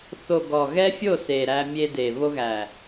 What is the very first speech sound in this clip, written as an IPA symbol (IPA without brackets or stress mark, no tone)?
θ